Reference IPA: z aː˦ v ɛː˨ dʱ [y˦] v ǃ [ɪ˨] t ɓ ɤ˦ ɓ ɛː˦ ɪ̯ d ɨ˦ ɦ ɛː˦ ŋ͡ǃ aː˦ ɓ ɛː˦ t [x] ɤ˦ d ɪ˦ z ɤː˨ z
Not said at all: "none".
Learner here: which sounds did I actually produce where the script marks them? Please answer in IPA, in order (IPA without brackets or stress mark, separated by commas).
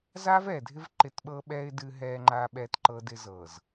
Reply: ɪ˦, ɪ˦˨, ǃ